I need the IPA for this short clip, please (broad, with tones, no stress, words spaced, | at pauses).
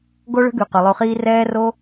ɡo˦ɭə̤˦ɡʉ˨ qø˨lˠo˧χiː˦ rɛː˦ro˦